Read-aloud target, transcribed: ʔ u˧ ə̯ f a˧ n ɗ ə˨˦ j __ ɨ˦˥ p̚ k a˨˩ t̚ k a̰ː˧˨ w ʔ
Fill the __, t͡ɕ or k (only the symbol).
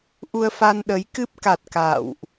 k